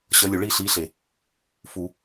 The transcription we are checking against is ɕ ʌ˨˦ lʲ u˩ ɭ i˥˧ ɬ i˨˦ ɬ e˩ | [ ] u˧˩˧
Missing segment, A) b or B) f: B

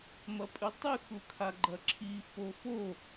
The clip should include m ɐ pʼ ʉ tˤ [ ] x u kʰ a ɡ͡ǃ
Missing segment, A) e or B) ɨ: B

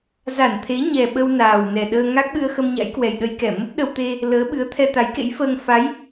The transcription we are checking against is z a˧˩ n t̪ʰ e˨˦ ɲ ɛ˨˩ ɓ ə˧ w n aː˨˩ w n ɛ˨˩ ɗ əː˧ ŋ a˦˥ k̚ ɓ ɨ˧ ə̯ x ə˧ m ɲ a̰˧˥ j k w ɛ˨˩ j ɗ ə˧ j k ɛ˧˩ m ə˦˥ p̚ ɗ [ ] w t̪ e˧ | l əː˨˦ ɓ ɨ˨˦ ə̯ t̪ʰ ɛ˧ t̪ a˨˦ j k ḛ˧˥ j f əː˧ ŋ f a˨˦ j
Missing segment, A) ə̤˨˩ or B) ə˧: B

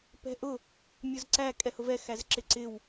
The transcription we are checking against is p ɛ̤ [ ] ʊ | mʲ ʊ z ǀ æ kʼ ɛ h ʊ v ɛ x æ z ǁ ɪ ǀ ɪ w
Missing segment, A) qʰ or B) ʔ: B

